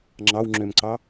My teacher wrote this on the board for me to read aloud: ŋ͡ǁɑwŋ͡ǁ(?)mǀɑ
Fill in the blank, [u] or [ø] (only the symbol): ø